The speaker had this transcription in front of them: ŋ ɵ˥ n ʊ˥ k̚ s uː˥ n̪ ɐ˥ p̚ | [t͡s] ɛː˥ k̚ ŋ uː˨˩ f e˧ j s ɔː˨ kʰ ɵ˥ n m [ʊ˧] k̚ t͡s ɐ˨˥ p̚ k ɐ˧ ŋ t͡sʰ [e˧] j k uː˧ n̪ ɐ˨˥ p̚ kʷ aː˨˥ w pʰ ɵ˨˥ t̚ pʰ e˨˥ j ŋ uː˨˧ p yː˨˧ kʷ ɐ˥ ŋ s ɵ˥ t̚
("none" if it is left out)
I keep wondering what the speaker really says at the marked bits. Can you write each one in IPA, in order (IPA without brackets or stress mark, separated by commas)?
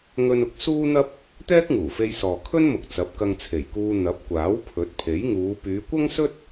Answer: t̪, ʊ˨, e˨˩